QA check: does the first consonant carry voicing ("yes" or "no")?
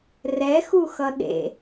yes